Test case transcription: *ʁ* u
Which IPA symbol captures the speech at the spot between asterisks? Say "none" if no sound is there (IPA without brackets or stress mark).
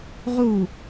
ʁ